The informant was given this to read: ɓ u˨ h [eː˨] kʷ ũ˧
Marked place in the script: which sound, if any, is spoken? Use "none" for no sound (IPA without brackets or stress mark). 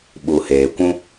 eː˨